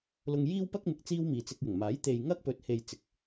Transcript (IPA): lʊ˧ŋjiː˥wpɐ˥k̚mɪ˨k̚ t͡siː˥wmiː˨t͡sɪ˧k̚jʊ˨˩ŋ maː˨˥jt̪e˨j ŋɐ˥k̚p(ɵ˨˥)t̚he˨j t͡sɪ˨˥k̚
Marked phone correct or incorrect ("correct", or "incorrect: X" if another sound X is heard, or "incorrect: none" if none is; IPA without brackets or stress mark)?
correct